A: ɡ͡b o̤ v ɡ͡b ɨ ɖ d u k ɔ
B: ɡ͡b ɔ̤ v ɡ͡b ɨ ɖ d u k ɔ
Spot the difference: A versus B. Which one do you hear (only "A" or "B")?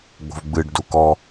A